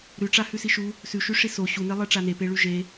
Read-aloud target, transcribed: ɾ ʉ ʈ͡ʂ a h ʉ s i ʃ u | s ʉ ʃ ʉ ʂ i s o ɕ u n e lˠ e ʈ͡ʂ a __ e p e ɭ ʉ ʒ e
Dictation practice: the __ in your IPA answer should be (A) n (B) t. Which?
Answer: A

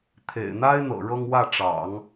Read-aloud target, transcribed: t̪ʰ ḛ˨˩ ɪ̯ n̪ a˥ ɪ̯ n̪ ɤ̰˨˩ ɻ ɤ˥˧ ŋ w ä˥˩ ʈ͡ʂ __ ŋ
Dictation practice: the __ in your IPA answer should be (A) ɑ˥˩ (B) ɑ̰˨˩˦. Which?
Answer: B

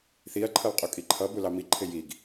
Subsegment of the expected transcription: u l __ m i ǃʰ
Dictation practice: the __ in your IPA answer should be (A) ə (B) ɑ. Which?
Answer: B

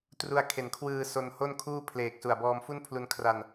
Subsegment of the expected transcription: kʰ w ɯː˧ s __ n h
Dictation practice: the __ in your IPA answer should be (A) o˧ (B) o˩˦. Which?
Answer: A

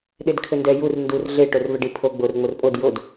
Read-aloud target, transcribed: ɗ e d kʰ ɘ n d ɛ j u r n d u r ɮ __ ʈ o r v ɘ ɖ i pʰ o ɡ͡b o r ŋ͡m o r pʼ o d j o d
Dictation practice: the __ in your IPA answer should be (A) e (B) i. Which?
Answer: A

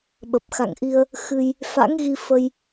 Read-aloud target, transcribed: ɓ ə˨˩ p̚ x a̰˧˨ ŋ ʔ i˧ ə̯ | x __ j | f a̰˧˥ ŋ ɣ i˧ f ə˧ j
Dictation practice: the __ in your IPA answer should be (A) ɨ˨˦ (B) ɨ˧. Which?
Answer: B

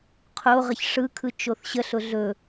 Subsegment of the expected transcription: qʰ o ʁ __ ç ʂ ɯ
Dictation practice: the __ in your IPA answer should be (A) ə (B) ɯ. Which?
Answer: A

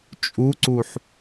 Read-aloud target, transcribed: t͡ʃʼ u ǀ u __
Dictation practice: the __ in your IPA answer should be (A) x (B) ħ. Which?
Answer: B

